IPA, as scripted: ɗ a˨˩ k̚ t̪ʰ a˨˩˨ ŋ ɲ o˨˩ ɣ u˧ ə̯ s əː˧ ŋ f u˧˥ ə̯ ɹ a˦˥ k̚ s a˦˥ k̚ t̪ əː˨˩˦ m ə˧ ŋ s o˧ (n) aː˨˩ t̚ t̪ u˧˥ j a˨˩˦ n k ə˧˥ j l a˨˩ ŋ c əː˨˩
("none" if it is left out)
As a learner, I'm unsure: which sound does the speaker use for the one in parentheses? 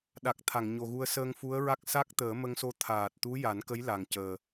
t̪ʰ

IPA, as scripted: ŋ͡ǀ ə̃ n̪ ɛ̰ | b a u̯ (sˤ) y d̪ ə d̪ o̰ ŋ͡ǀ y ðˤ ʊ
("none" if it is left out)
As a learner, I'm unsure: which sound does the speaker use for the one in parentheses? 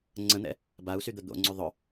s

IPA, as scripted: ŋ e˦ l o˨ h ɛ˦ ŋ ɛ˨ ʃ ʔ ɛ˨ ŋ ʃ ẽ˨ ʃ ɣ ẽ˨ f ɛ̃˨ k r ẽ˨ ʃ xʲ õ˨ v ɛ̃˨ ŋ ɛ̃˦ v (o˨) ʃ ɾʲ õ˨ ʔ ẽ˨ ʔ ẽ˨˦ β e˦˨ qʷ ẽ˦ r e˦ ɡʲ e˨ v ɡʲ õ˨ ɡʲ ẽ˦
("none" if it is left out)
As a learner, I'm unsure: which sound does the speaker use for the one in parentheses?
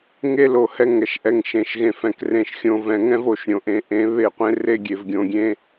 o˨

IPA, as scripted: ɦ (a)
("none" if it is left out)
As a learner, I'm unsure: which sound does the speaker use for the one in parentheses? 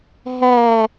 æ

